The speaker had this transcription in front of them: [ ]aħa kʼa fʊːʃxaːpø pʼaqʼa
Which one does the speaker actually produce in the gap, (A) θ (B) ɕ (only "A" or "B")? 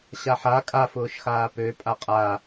B